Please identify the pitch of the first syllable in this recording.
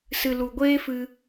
low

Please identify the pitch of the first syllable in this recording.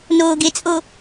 low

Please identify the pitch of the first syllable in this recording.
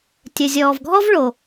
low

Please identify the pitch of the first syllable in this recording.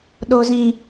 high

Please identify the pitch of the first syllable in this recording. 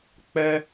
high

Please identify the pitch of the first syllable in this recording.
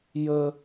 high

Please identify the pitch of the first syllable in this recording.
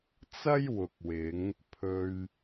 high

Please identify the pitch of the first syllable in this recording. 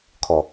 low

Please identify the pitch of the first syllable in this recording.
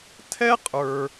high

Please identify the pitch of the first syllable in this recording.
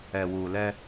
low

